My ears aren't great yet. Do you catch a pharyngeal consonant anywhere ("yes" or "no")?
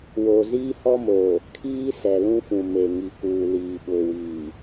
no